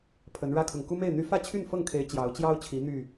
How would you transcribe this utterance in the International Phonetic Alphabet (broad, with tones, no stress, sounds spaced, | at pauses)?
pʰ ə˨˦ n ɻ ä˦ kʰ ʊ˨ ŋ k u˦ m e˥˨ ɪ̯ n̪ y˦ f ä˥˨ t͡ɕʰ y˥˨ n f ɤ˥˨ ŋ kʰ e˨˦ ɪ̯ t͡ɕ j ɑ˨˦ ʊ̯ t͡ɕ j ɑ˦ ʊ̯ t͡ɕʰ i˨˦ n̪ y˥˨